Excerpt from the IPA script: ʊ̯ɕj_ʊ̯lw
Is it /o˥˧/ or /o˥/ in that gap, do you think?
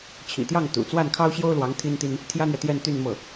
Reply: o˥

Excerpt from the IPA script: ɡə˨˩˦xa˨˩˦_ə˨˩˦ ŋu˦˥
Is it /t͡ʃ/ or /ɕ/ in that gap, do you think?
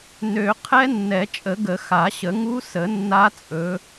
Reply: ɕ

